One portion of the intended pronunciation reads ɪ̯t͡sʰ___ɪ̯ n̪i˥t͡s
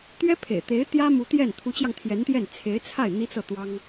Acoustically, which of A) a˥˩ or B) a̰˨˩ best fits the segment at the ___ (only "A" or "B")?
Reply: A